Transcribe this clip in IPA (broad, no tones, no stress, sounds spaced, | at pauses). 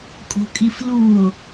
kʼ o̤ kʼ i f l u o̯